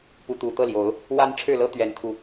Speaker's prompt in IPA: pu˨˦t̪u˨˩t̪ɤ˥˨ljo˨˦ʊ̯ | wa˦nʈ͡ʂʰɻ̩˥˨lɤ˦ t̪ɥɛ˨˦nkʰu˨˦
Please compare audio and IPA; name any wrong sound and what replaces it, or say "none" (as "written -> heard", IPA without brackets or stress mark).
none